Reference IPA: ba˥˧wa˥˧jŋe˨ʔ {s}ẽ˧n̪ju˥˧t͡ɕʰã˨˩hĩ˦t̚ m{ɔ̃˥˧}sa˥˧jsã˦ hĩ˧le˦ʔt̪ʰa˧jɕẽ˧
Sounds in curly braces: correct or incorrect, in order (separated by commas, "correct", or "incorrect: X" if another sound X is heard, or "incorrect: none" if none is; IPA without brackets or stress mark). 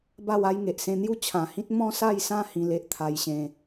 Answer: correct, correct